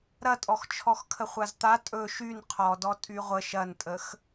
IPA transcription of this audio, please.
ɾ ɐ tʼ ɔ x t͡ʃʰ ɔ x kʰ ə χʷ a z t̪ a tʼ ɵ ʃ y n qʰ ɔ d ɔ tʼ y ʁʷ ə ʃ ɐ n tʼ ə x

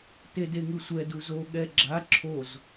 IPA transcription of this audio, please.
t e d e ŋ ɯ sʷ ɛ d u z o ɠ ɛ ɡ͡ǁ a ǁʰ o z

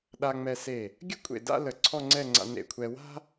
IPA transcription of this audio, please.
ɗ a˧ ŋ͡m ɛ˧ s e˧˩ | ɡʲ ə˥˧ kʷʼ ḛ˧˩ d a̰˥˧ l ə˧˩ ǀʰ ɔ˥˧ ŋ͡ǀ ɛ˥˧ ŋ͡ǀ a̰˧ n ḛ˧˩ kʷʰ ɛ˧ w a̤˥

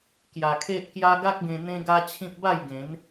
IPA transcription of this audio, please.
k j a˧ kʰ e˦ ʔ k j a˦ ɡ a˦ k̚ ɡ ẽ˧ n̪ ẽ˦ ɡ a˦ t͡ɕʰ ĩ˦ p̚ b a˥˧ j ɡ ẽ˨˦ n

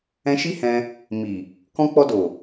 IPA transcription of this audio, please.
ɛ̃˧ ʃ i˦ h ɛ̃˧ | m i˨ | k ɔ̃˧ k͡p ɔ˧ d o˨

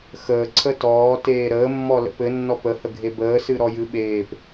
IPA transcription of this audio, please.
x əː ǀʰ ə t ɔː t eː ɾ əː mː ɔ l ə̰ p ɘ nː ɔ p ə h ə ɡʱ e b əː s ɨ ɾ ɔ j ɨ ɓ eː p

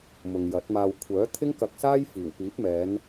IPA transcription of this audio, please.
m ʊ˨ ŋ j ɐ˨˥ t̚ m aː˧ w kʷʰ œː˨˥ t̪ʰ ɪ˥ ŋ k ɐ˧ k̚ s aː˥ j f iː˨˩ w p iː˨˥ p̚ m ɛː˨˧ n

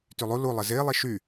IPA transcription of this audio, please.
t y lˠ u l u lˠ ɪ z ɪː lˠ i ʃ y

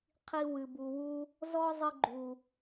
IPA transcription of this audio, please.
qʰ i˧ w ɨ˨ b u˨ w u˧ | z ɔ˦ zˤ ɨ˧ ɡ͡ǃ u˨

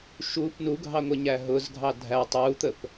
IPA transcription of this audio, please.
ʃ u p n u ɡʱ ɑ ŋʷ ɪ ɲ æ ɦ ʊ z ɡʱ ɑ dʱ æ tˤ u t̪ ə p

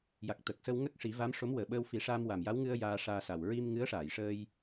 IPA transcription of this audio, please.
j a˨˩ k̚ t̪ ə˨˩ k̚ s ə˧ w ŋ ə˦˥ k̚ ʂ i˨˩˦ v a˧˥ m ʂ o˧˥ m w əː˨˩ ɓ əː˧ w f i˨˩˦ ʂ a˧ m w a˨˩ m j a˧˥ w ŋ ɨ˧ ə̯ j aː˧ ʂ aː˧ s a˨˩ w ɹ i˧ m ŋ ɨ˧˥ ə̯ ʂ aː˨˩˨ j ʂ əː˧ j

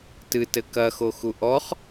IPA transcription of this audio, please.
t ɨ t ɘ k ɐ x o x u ʔ ɔ χ

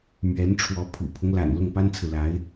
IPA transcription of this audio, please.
m ɥ ɛ˧˥ n ʈ͡ʂʰ w ɔ˧˥ pʰ ṵ˨˩ pʰ ʊ˦ ŋ l a̰˨˩ n l ʊ˥˩ ŋ p a˥ n t͡sʰ ɹ̩˨ l a˧˥ ɪ̯

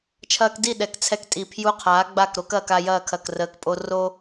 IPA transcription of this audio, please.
t͡ʃʰ ɐː˧ k d i˦˨ ɗ ɛ˨ k t͡sʰ ɛ˧ k tʼ i˨ pʰ j u˧ qʰ aː˨˦ ɡ͡b a˦˨ k ɾ o˦ k ɐː˧ k a˧ j ɐː˦˨ kʰ ɐ˨ k r əː˨ k pʼ o˧ r o˦

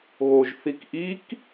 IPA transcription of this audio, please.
ɣ o ʒ θ i k ʔ i k

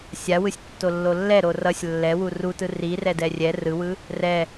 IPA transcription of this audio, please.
sʲ a w ɯ sʲ tː o lː o lː ɛ ɾ o r ʌ sʲ lː ɛ w u r u t ɯ r i r ɛ d ɛ rʲ ɛ r ɯ w ɯ | r ɛ

